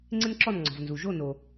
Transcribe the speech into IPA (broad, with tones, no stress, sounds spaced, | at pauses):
ŋ͡ǀ ɪ˥ n ǁ ɔ˥˨ n ŋ͡ǀ ɔ̤˩ v n z u˩ ʒ o˥˨ n o˩